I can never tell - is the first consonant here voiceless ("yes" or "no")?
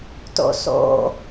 yes